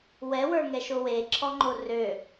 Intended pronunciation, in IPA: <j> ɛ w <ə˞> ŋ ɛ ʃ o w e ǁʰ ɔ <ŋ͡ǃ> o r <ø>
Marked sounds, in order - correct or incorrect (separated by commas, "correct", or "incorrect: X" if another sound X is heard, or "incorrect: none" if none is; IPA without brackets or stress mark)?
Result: incorrect: w, correct, correct, correct